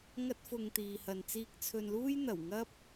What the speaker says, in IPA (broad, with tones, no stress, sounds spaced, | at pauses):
ŋ ɐ˥ t̚ f ʊ˧ ŋ t̪ iː˨ h ɐ˨ n t͡s iː˧ k̚ t͡sʰ ɵ˧ n l uː˥ j n̪ ɐ˨˩ w ŋ ɐ˥ p̚